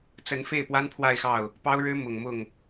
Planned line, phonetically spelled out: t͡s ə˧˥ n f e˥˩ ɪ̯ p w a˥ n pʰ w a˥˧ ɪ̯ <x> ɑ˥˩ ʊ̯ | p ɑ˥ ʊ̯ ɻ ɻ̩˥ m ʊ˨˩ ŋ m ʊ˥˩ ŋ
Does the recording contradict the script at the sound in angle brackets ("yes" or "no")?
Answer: no